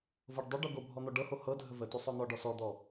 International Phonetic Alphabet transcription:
vɤɖ dˤoɖo ɡobʱɔ n̪ɔɖɤho hɤdʱə vətosˤ ɔn̪ɔɖɔ sɔd̪ɔ

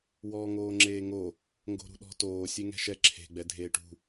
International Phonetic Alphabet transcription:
wɔːŋoːŋ͡ǁeːŋo | ŋɡo̤ɾṳɗɔ̤toː sʲeŋɛ̤ʃɛ ǁʰe̤ ɡ͡bɛdʱeːʈṳ

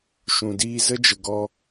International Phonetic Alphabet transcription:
ʃũ˨diː˧zə˦d͡ʒə˨ ɡɔ˧

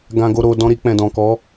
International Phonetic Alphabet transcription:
ɡã˧ɡo˧ ɾo˨ dɔ̃˧ɾi˧ k͡pɛ̃˨dɔ̃˨kɔ˨˦

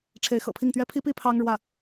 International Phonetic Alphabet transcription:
ʈ͡ʂʰe˧˥ɪ̯xɤ̰˨˩pʰi˥˩ŋt̪ɥɛ˥ pʰi˥pi˥ pʰɑ˥ŋɻwä˥˩

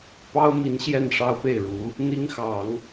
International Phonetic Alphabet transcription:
pɑ˥ʊ̯mi˧˥n ɕjɛ˥˩nʂɑ˥ʊ̯pe˥˩ɪ̯ɻu˧˥ | n̪i˥ŋxɑ˨˩˦ŋ

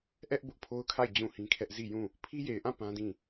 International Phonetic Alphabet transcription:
ʔɛ˦ʔ bʊ˦ʔpʰo˦ʊ̯kʰa˦˨ɪ̯ d͡ʑũ˦˨hĩ˦kʰɛ˦ʔ zi˦˨jũ˦˨ | pʰi˦je˨ɪ̯ʔã˦˨ pã˦dĩ˦˨

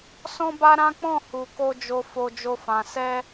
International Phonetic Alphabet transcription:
sɔ̃˧ba˧ ɾã˦k͡pɔ̃˦˨ hu˨ ko˧ d͡ʒo˨ fo˧d͡ʒo˧ fã˨sɛ˧

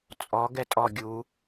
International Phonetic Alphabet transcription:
t͡sʼɔ ɡɛtʼɔ ɡʲu

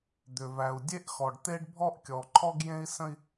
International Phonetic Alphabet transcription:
d̪ʏ˨ væ˨u̯dʲe˦ʔxɔ˨ɖ t̪e˦ɖbʱɔ˦ʔ kʲɔ˨ǃʰɔ˦ɡjẽ˦i̯ sə̃˦i̯

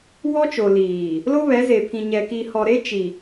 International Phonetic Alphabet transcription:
wɔ˦t͡ʃo˨liː˨ | lo˦βɛ˨˦ze˨pʰĩ˨ ɲɛ˨ki˨hɔ˨ ɾe˦t͡ʃi˨

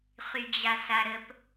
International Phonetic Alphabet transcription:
χyd͡ʑasaɾəp

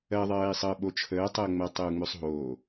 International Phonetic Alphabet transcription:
ɜðˤɜːi̯sˤəː ɓot͡ʃʰəːtˤəːŋ͡mɜ tˤəu̯ŋ͡møsˤɦo

